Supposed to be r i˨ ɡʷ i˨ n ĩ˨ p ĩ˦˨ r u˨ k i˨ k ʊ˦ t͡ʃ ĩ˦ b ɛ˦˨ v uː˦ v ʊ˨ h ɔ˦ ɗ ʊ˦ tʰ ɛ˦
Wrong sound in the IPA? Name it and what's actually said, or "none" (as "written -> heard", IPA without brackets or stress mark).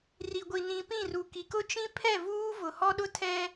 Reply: b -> pʰ